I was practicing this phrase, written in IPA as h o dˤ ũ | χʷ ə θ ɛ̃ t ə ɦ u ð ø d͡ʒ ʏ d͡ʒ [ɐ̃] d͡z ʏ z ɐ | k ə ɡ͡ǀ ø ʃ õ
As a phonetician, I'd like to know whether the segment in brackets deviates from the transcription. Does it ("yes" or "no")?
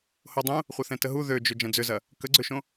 no